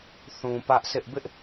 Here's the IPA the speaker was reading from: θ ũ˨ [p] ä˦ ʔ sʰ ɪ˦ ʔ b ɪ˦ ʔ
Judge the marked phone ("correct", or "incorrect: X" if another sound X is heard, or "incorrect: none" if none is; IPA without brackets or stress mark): correct